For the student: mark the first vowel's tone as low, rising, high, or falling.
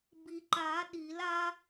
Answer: low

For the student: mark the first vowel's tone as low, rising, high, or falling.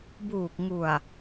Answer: low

